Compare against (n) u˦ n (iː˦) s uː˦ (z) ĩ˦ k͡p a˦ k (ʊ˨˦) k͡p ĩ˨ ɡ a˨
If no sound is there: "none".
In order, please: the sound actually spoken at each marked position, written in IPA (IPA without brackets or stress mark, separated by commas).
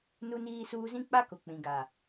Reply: n, iː˦, z, ʊ˨